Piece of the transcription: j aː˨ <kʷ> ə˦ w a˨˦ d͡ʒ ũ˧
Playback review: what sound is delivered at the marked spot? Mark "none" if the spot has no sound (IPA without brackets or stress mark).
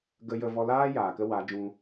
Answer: k